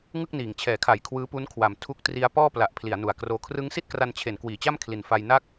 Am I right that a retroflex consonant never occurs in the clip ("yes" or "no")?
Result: yes